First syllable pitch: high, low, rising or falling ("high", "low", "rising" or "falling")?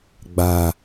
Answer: low